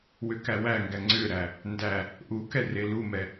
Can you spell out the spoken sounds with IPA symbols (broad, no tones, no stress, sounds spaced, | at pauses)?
w ʏ k æ w æ ŋ ɡ æ ŋ͡ǀ ʏ ɾ æ | n d æ | ʔ u k ɛ r e l u m ɛ